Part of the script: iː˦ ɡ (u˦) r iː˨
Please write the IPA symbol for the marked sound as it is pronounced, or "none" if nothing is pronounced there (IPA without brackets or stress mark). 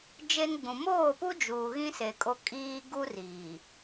u˦